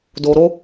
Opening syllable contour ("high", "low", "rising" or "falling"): low